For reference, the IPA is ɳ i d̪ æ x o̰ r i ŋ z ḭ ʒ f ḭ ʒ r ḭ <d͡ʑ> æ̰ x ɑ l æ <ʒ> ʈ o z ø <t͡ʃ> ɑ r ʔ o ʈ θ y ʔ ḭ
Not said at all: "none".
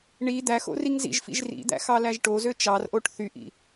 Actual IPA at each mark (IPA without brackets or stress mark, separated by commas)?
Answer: d̪, ʒ, t͡ʃ